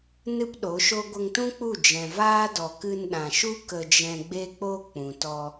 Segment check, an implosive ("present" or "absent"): present